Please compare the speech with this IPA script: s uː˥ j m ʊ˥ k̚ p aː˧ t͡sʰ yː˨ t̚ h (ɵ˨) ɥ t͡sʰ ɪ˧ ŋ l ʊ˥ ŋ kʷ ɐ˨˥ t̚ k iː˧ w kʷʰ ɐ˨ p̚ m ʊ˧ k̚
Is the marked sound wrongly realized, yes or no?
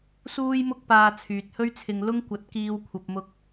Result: yes